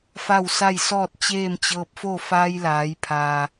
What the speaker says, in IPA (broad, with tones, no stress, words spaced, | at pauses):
fa˥˨wsa˥˨jsɔː˥˨t̚ t͡ɕeː˥˨mt͡ɕɤː˧p̚fo˥˨ faː˧jlaː˩˧jpʰaː˩